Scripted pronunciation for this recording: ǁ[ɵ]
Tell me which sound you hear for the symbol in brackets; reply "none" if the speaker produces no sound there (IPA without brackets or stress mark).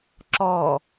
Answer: ɔ